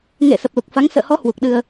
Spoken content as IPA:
ŋ ḛ˧˨ s ə˨˩ p̚ l u˨˩ k̚ f a˨˦ ŋ s ə̰ː˧˨ h ɔ˨˦ h w u˨˩ k̚ ɗ ɨ˧ ə̯

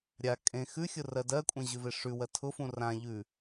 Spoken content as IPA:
ɾʲ a kʼ ẽ x ʉ xʲ ʊ r ɜ d ɜ kʷʼ ẽ ʑ ʉ v e ʂ ʉ w ɜ tʰ ʊ f ũ r ã ʎ ʉ

